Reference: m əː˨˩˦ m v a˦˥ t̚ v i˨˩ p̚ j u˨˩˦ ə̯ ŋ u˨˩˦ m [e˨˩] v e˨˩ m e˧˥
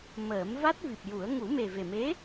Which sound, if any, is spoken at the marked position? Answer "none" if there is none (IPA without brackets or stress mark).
e˨˩